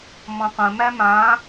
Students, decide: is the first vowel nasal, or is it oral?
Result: nasal